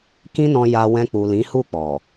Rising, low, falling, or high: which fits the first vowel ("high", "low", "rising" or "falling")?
high